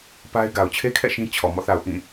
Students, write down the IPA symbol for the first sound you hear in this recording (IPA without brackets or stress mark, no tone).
p